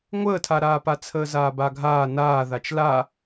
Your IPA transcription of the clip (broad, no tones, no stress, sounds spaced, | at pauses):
ŋʷ əː tʰ a ɾ aː p a t͡sʰ əː z aː b a ɡʱ aː n aː ð a t͡ʃ l a